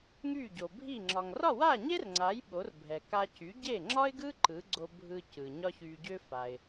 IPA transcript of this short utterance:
ŋy˥˩ɟo˩bʱi˥˩ ŋ͡ǁɒ˩ŋrɒ˥˩wa˥˩ɲe˥r ŋ͡ǀa˩˥j ɓo˩˥rbʱɛ˩ ka˧cy˩˥ ɟe˥˩ŋ͡ǁɒ˥ɪ̯ɡɯ˥ ǃɯ˩˥ɡ͡ǀo˧ bʱɯ˧ cɯ˩ɲɒ˥çy˧ɟʏ˥ fa˩ɪ̯

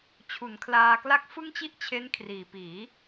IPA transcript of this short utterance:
t͡ɕʰu˩˦nkʰlaː˧kla˥˩k̚ fɯ˥˩ŋt͡ɕi˥˩ʔt͡ɕʰe˦˥n kʰriː˨˩piː˩˦

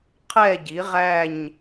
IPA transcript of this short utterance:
qʰɛ˥˨ɟi˩˥ʁæ˥˨ɲ

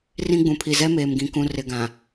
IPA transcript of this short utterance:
rĩ˦ɡ͡bũ˨ pʰi˨zɛ˦meː˨mɡĩ˨ kũ˨ rɪ˨ɡã˨

